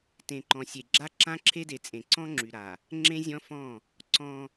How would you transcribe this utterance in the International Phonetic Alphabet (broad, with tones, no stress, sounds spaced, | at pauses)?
t ẽ˨ ǃ ɔ̃˨ sʲ e˨ ɡ͡ǁ a˦ ǁ ã˦ ǁʰ e˦ d e˨ t͡sʼ ẽ˨ ǀ ɔ̃˦ ŋ͡ǁ y˨ ɾ a˨ | ŋ͡ǁ ẽ˦ zʲ ɔ̃˦ f ɔ̃˦˨ | ǀ ɔ̃˦